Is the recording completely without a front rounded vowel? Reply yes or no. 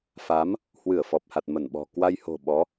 yes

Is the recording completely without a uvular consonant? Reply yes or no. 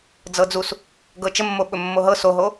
yes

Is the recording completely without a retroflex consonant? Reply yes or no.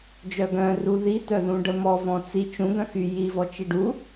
no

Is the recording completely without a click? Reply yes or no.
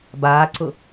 no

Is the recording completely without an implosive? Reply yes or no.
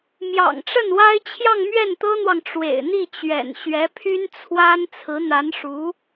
yes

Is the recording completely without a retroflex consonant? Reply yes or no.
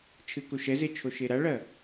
no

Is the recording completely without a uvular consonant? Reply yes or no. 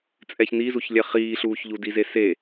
no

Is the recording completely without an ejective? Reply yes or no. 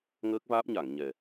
yes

